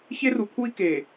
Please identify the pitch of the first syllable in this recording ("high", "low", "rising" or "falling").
high